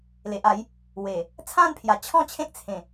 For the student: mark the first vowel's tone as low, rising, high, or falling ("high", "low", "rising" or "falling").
low